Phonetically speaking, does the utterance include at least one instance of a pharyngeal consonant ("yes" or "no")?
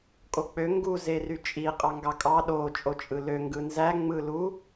no